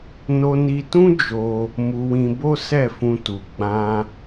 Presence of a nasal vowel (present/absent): present